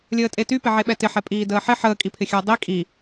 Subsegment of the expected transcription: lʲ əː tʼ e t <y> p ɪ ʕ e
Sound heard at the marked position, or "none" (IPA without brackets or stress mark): y